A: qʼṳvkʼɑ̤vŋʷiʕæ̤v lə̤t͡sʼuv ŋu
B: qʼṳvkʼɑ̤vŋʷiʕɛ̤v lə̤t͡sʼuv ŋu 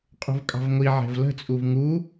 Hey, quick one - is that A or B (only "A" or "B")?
B